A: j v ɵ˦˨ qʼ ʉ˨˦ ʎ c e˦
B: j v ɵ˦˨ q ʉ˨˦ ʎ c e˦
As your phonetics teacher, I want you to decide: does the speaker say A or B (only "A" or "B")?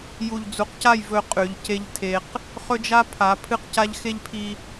A